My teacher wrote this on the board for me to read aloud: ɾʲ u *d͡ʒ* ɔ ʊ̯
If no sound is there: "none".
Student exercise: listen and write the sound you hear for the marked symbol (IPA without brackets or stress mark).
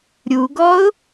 ɡ